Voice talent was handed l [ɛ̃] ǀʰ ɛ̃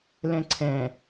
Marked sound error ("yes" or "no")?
no